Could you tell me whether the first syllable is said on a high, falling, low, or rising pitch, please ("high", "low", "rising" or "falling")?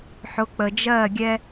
rising